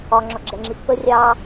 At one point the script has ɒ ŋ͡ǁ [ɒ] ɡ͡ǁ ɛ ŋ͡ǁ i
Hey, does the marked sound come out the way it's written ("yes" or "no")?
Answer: yes